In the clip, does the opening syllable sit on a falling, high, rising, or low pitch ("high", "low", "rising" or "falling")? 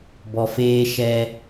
low